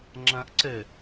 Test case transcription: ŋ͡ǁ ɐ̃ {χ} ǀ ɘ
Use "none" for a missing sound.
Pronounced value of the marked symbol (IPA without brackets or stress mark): ʔ